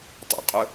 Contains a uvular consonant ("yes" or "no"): yes